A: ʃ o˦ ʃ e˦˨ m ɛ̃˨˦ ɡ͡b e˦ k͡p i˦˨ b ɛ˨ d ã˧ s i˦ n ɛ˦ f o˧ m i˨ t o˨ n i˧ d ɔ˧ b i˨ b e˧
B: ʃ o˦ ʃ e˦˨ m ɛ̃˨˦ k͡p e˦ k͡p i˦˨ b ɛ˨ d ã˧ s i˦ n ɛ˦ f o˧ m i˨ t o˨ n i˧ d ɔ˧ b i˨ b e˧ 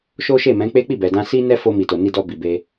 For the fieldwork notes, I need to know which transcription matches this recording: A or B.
B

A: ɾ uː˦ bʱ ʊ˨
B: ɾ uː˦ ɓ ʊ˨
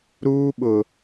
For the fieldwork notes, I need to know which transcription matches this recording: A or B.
B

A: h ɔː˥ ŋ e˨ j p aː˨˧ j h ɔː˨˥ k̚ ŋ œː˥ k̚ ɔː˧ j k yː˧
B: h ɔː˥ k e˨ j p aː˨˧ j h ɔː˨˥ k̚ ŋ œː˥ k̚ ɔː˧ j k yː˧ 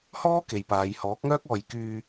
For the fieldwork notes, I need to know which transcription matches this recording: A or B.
B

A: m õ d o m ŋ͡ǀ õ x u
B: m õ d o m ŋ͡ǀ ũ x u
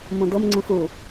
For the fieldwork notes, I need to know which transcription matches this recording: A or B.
B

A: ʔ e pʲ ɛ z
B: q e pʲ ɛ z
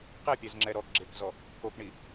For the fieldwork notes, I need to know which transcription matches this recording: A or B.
B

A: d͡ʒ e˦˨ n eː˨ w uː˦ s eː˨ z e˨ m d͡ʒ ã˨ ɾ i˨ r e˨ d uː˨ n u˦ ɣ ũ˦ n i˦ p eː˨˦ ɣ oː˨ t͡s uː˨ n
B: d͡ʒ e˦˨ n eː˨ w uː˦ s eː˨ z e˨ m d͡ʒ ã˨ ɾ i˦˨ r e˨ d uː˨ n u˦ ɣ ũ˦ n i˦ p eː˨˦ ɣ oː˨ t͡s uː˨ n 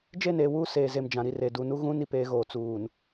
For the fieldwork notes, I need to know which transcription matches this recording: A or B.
A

